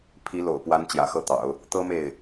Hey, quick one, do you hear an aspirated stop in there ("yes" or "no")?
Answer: yes